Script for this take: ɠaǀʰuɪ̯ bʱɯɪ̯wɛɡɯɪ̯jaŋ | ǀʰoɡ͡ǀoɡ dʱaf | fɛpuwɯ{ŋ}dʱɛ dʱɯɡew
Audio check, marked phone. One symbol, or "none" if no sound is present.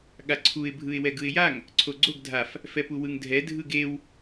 ŋ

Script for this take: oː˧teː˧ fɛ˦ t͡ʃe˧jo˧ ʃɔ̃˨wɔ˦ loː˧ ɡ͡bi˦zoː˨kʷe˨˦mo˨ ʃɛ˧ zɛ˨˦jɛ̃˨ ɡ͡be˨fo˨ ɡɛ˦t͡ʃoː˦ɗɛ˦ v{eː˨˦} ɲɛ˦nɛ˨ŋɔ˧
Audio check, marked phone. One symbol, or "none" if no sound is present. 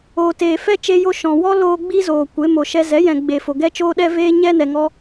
eː˦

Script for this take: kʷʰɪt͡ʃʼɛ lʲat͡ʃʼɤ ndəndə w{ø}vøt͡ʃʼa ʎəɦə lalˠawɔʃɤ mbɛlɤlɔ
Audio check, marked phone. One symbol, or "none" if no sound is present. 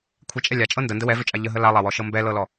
ɛ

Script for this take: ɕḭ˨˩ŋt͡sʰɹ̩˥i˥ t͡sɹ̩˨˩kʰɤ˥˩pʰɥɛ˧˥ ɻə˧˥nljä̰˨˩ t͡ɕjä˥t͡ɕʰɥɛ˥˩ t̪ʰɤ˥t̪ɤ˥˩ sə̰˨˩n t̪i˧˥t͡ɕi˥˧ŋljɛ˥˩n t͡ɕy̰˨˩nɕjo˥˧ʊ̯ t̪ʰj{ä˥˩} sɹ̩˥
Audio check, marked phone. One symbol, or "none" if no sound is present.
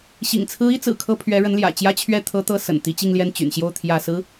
ä˥˩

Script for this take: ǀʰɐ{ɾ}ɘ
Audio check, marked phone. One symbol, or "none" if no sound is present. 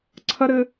ɾ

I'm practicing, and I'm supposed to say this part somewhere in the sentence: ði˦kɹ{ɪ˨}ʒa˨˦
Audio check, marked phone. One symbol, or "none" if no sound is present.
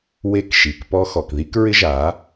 ɪ˦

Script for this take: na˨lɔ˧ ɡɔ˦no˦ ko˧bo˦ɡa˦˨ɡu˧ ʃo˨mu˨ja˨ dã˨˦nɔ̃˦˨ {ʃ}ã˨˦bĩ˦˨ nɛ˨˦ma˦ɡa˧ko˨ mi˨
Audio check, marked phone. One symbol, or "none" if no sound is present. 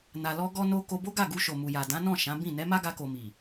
ʃ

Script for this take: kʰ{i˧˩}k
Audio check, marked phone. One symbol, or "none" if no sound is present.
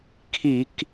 i˧˩˧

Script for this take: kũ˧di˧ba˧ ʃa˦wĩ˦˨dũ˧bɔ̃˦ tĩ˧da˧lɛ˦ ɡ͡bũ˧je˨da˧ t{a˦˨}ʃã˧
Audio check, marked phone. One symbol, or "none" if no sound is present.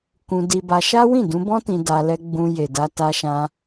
a˧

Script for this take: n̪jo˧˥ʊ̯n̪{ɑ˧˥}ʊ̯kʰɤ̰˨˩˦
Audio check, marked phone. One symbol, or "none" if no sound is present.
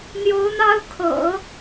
ɑ˥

